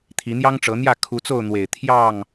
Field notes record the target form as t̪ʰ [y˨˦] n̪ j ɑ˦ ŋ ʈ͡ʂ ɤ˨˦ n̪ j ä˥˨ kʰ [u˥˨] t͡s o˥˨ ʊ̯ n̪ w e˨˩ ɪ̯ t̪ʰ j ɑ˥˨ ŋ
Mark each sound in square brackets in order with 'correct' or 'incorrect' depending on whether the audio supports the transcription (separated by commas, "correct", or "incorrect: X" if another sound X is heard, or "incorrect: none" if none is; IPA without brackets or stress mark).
incorrect: i˨˦, incorrect: u˨˦